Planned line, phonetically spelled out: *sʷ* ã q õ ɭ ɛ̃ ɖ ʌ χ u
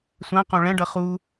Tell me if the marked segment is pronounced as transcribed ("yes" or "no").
yes